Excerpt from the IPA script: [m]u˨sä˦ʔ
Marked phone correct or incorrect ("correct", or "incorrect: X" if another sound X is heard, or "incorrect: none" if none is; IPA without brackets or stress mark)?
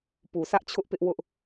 incorrect: p